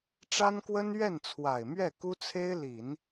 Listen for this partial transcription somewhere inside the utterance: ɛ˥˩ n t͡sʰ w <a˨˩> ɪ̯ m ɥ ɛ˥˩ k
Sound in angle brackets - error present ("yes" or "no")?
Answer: no